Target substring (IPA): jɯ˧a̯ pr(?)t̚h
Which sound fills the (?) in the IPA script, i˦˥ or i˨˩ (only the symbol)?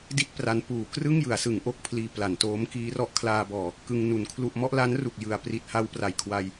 i˨˩